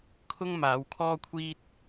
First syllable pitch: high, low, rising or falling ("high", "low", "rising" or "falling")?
high